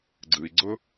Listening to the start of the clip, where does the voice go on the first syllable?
low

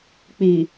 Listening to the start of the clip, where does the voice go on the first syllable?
low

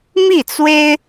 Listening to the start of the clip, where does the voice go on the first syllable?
falling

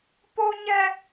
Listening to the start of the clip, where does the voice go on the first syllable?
high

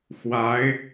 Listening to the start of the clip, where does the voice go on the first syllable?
rising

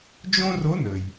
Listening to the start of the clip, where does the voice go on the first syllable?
high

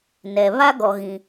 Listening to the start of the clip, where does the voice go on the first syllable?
low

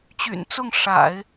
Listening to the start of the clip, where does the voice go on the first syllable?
low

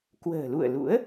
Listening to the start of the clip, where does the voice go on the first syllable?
low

